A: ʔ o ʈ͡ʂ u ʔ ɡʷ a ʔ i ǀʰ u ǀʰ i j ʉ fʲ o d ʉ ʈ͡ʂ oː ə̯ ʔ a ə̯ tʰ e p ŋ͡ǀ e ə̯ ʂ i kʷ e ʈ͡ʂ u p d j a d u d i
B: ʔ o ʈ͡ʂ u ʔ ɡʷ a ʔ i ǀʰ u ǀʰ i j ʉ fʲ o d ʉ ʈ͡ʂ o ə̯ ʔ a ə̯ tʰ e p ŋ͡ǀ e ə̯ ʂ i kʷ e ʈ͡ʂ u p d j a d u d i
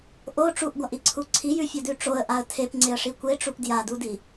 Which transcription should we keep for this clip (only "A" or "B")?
B